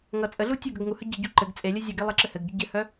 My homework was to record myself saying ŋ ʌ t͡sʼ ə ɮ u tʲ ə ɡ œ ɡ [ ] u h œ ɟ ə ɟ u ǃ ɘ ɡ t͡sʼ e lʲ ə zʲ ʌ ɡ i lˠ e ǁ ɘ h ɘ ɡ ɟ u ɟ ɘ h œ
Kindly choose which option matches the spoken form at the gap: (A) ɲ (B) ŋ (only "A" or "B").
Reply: B